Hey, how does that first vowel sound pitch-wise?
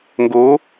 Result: rising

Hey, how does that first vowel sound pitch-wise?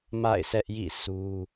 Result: falling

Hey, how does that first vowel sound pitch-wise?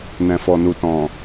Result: low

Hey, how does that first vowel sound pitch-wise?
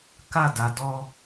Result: falling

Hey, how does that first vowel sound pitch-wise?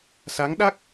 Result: rising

